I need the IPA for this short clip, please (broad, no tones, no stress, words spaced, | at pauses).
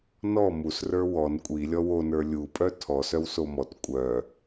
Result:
nɔ mus rə˞wɔn kʷʼi lʲɔwo nə˞lʲu pʼœtʰɔ sœwsomɔt kʷʼœ